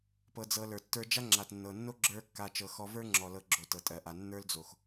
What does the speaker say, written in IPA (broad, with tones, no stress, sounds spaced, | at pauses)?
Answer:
p ɤ˧ d͡z ɤ˧ l ə˞˨ tː ə˞˦ d͡ʒ a˦ ŋ͡ǁ a˨ t nː ɤ˨ nː o˦ ɡ͡ǁ ə˞˦ kː a˧ t͡ʃ ɤ˨ x ɔ˧ v ə˞˦ ŋ͡ǁ ɔ˨ l ɤ˧ ɡ͡ǁ o˨ t ɤ˨ tʼ ɜ˨ ʔ a˨ nː ə˞˦ l d͡z o˨ x